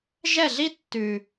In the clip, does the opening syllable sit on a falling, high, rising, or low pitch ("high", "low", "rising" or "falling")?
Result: falling